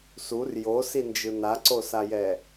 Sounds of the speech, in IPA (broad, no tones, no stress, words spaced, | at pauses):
sur josind͡ʒɯ naǀosajɛ